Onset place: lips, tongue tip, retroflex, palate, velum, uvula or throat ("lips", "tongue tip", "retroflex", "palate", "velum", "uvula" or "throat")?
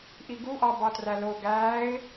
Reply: throat